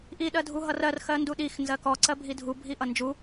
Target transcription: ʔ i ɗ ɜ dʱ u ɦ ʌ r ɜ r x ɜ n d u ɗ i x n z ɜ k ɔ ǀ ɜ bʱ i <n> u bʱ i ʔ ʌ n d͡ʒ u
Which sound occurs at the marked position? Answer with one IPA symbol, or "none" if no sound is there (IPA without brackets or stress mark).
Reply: dʱ